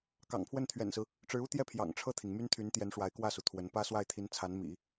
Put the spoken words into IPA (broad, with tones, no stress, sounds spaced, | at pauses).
k ɑ̰˨˩ ŋ pʰ w ə˥˩ n t̪ʰ ɥ ɛ̰˨˩ n s ɹ̩˦ | ʈ͡ʂ ɻ̩˧˥ u˥ t̪ j ɛ˥˩ pʰ j ɑ̰˨˩ ŋ ʈ͡ʂʰ ɤ˥˩ t̪ʰ i˩ ŋ m y˥ n t̪ʰ y˧˥ n t̪ j ɛ˧˥ n ʂ w a˧˥ ɪ̯ k w ä˥˩ s u˩ t̪ʰ w ə˧˥ n p ä˥ s w a˥˩ ɪ̯ t̪ʰ i˧˥ n t͡sʰ a˧˥ n m ḭ˨˩˦